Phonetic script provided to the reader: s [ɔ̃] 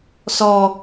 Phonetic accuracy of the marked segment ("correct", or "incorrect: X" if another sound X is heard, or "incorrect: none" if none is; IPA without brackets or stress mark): incorrect: ɔ